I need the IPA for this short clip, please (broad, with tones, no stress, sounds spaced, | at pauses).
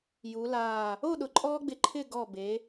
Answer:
j u˩˧ l aː˧˩ | o˥˧ ɗ ʊ˩˧ ǃʼ ɔː˥ ɡ͡b ɪ˧ ǃʰ ɪː˥˧ ɡ ɔ˧˩ b e˩˧